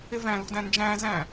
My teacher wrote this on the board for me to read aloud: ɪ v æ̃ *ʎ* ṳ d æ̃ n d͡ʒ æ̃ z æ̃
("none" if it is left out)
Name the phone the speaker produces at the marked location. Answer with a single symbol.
l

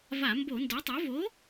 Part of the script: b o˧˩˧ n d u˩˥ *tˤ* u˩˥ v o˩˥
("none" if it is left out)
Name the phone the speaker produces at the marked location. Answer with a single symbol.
tˤ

